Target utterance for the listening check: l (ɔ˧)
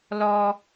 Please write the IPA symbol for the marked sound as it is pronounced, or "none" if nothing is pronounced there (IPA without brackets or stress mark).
ɔ˧